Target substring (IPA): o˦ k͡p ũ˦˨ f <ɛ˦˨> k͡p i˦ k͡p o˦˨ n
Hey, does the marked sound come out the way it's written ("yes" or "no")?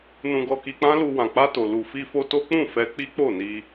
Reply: no